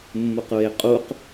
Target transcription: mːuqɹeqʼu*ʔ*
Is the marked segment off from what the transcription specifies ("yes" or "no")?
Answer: yes